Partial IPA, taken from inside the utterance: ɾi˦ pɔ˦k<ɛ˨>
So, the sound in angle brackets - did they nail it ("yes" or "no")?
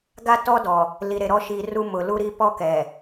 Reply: yes